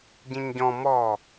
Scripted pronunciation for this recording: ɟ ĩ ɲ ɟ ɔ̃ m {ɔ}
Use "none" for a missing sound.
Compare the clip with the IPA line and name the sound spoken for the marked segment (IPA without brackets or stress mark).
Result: ɔ